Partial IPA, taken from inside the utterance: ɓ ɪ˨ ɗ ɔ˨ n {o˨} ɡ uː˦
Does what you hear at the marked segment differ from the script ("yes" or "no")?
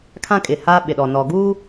yes